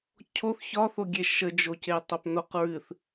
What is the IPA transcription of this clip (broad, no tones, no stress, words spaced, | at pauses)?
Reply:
cʰoθ çɒθoɡʲe ʃəd͡ʒoce tˤopnoq ɹɨθ